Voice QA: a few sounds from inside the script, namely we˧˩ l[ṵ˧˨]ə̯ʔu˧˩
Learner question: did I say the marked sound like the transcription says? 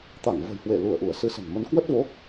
no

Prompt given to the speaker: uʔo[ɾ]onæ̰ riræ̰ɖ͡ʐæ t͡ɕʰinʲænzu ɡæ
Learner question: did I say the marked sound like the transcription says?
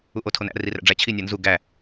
no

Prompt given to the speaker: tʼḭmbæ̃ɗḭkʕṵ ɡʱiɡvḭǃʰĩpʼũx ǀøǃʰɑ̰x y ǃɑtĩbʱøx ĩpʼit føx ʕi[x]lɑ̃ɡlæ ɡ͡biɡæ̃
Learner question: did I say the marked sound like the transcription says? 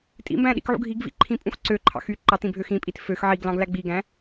no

